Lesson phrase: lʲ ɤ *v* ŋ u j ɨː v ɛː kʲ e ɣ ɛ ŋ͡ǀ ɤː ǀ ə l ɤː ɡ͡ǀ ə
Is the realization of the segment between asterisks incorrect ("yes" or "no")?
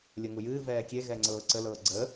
yes